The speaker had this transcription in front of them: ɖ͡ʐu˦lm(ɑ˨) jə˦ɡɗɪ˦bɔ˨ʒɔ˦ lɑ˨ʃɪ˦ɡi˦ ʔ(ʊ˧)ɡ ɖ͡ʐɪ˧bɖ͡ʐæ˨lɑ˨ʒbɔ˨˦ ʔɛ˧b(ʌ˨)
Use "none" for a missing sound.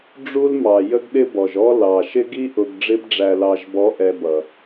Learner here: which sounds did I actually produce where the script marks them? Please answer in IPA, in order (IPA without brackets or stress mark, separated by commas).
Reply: ɑ˨, ʊ˧, ʌ˨